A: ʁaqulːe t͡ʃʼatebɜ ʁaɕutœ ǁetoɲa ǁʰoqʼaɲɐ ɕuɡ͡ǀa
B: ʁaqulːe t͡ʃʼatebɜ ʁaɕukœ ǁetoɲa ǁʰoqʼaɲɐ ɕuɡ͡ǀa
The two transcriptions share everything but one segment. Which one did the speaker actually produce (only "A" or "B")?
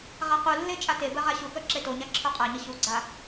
B